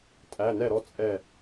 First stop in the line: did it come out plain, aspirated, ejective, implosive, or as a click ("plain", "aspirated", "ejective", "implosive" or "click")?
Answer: ejective